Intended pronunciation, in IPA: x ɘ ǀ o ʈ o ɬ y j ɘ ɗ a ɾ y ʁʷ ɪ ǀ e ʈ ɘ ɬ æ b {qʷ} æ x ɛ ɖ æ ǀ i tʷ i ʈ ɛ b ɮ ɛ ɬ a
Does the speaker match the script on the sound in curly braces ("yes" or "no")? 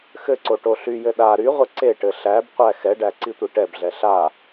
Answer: yes